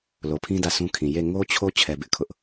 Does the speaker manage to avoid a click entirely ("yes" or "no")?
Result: yes